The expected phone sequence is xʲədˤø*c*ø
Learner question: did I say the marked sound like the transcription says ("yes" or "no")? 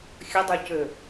yes